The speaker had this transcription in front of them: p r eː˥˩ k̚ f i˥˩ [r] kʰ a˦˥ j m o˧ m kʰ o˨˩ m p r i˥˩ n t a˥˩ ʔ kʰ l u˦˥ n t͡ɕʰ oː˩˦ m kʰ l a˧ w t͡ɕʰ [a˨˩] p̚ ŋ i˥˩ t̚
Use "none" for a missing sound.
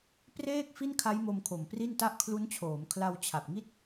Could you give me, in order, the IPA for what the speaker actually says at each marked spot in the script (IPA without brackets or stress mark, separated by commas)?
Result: n, a˨˩